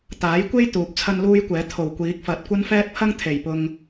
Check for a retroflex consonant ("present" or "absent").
absent